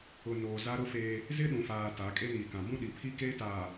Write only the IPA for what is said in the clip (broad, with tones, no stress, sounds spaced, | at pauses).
ʊ˨ n oː˨ z a˦ ɾ ʊ˦ f eː˦ | z ɪ˦ ɗ ũ˨ f aː˨ t a˨˦ kʼ e˦ n iː˨ k ã˨ b ũ˦ ɗ i˨ pʰ i˦ k eː˦ t aː˨